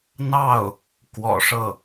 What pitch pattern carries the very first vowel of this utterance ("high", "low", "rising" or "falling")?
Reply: falling